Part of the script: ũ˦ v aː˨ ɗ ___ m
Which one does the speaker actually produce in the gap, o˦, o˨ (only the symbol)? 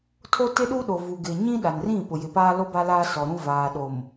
o˨